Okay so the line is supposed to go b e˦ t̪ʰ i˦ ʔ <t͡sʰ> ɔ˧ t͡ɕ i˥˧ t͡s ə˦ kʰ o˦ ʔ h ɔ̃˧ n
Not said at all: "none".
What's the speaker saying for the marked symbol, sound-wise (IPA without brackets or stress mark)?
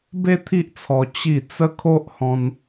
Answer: t͡sʰ